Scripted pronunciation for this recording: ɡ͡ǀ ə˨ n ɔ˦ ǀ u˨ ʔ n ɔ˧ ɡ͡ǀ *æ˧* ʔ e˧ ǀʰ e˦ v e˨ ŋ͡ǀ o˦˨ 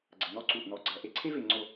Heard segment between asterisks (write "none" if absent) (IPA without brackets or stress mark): ɐ˧